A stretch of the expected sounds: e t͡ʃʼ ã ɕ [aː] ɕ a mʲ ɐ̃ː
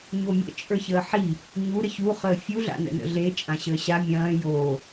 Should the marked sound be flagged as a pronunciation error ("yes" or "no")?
yes